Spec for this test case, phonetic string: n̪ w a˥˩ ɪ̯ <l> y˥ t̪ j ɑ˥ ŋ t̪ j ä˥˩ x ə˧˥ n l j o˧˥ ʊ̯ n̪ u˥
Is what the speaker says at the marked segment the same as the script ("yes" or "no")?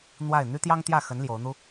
no